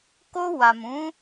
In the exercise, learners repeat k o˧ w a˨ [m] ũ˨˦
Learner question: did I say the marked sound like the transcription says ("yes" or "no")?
yes